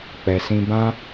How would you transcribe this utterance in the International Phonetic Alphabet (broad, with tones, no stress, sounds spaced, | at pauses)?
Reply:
k͡p ɛ˧ s ĩ˦ b ã˦